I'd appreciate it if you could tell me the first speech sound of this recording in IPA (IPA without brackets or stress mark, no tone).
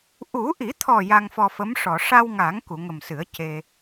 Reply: ʔ